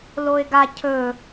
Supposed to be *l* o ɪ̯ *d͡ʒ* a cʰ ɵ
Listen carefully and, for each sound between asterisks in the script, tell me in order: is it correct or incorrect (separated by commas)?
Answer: correct, incorrect